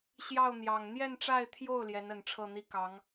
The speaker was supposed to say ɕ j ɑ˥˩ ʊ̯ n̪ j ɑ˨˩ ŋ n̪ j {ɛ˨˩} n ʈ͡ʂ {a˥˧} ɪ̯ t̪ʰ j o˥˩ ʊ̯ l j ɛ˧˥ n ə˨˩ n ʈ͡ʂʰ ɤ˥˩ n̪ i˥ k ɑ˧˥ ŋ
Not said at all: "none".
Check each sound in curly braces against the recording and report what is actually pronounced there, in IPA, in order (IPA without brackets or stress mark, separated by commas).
ɛ˥˧, a˥˧